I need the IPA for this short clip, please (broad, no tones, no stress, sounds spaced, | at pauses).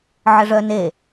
ʕ ə ʐ œ n e